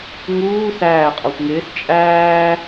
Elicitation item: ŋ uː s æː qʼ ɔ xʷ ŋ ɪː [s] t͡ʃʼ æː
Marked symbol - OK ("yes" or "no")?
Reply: yes